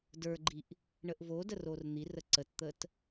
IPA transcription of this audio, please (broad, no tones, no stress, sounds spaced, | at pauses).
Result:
d ə˞ ɡ͡ǃ i ʔ | ɳ ə ʔ v o d ə r o r n̪ i r ə ǀ ə t t̪ ə t